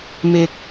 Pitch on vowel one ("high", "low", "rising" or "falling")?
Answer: low